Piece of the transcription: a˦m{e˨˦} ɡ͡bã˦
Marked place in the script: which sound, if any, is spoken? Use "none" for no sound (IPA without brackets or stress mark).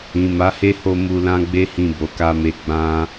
e˦